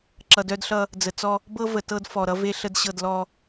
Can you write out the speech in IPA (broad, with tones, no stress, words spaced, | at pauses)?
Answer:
ǁʌ˨dœ˦dɬʌ˦ | d͡zə˨t͡sɔ˦ | bɤ˦və˨tɤ˦d fɔ˨ɾʌ˦ve˦ɬə˦d ɕɤ˦˨dlɔ˦